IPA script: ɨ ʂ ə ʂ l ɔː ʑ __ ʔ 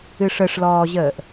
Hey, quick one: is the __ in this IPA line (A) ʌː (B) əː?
B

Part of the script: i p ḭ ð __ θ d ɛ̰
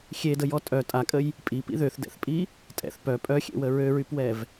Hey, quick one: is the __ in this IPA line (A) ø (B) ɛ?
A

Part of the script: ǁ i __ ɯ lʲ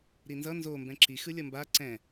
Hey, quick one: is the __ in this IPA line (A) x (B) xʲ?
A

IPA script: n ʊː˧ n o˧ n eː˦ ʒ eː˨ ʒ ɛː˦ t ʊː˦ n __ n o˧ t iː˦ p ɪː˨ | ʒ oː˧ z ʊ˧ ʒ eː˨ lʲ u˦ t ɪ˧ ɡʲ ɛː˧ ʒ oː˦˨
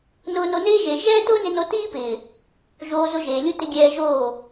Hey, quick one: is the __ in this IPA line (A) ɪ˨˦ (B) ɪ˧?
B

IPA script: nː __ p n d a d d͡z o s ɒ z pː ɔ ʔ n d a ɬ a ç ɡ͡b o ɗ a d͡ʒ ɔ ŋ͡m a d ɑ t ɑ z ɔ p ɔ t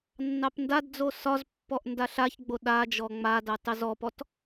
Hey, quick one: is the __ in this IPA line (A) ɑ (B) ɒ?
A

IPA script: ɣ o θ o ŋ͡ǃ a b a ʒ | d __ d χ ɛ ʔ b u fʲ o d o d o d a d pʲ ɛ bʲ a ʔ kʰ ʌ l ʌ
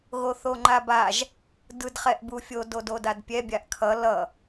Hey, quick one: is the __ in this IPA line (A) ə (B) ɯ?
B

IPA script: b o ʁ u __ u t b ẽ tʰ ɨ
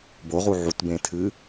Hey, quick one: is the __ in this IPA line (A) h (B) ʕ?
B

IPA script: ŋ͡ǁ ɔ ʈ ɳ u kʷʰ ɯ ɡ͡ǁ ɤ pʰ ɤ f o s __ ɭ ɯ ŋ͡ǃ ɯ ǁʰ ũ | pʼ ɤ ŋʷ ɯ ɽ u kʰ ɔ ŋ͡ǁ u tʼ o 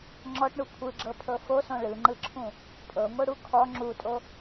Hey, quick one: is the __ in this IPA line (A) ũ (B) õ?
B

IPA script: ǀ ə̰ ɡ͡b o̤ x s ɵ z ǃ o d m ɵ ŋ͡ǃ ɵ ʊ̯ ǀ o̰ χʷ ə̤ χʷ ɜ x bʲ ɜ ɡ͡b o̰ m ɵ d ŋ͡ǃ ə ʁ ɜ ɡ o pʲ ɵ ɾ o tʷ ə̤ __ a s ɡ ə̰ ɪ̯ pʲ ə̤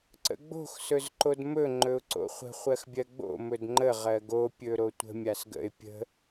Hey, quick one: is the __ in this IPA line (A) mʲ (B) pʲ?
A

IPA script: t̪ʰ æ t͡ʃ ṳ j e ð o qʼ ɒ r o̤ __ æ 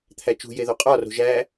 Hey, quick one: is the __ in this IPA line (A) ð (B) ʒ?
B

